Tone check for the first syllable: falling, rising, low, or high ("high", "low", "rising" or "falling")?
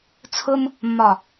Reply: high